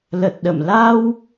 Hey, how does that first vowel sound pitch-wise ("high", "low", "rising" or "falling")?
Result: low